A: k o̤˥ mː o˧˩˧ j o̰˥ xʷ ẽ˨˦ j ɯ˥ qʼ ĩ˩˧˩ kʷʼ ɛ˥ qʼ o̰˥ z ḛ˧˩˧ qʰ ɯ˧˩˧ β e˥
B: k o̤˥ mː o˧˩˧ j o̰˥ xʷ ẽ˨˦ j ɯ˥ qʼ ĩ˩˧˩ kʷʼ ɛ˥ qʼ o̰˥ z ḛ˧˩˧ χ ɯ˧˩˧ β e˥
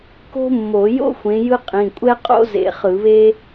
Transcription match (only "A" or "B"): B